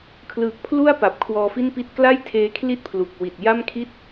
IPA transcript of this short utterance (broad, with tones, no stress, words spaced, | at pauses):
kʰlɯ˨˩k̚ pʰlu˥˩a̯ pa˨˩p̚kʰwɔː˧fi˥˩npi˥˩t̚ kla˥˩jtʰeː˦˥ kʰli˥˩t̚pʰlu˨˩k̚ wi˨˩t̚ja˥˩mkʰi˥˩t̚